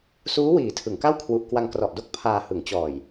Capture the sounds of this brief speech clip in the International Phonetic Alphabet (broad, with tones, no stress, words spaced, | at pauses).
suː˦˥wiː˩˦ tʰɯ˩˦ŋka˥˩w kʰwu˨˩ʔ kwa˧ŋkrɔ˨˩ʔ do˥˩k̚ pʰaː˧hɯ˩˦ŋ t͡ɕɔː˨˩j